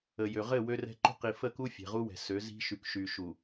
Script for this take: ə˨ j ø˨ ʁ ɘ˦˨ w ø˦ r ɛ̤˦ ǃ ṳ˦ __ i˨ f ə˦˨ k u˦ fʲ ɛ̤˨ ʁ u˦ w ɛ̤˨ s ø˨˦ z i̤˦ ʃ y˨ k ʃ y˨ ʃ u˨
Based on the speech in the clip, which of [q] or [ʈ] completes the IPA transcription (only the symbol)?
q